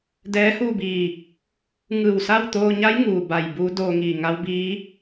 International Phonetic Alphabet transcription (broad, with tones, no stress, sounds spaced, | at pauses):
d ɛː˧˥ h uː˥˨ b iː˧˩ | ŋ ɯː˧˩ w s a˥˨ w t̪ oː˧ ɲ a˧˥ j ŋ uː˩ b a˧˩ j b uː˧˥ d oː˧ ŋ iː˧˩ ŋ a˧˥ w b iː˧˥